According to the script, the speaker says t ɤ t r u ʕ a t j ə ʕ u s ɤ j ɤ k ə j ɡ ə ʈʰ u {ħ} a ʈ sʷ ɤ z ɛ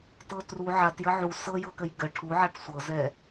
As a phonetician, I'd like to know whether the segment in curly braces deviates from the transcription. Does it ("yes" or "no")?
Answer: yes